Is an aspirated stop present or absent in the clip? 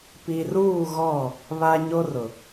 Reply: absent